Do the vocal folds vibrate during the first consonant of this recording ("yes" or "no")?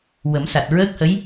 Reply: yes